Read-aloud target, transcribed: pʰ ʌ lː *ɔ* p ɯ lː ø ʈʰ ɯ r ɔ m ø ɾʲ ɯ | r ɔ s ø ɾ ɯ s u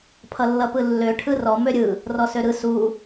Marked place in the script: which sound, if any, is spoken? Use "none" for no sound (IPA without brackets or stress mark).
ʌ